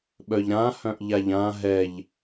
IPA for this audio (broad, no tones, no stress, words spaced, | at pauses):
ɓœʎɾã hœ̃ʔʎaʎã ɦɛʎ